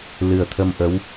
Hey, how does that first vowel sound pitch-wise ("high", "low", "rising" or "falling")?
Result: low